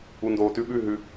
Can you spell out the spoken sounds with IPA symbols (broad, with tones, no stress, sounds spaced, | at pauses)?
u˨ n d oː˨ t ʉ˧ ɓ ʉ˦˨ ɦ ʉ˧